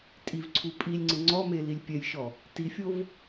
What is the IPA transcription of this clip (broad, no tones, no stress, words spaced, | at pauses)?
tʼivǀʰu pʼilʲŋ͡ǀɪ ŋ͡ǀɔme lilʲpʲɛjʃɔ | tifʲov